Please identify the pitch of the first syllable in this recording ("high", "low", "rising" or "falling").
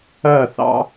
falling